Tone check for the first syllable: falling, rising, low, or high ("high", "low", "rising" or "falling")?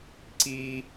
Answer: high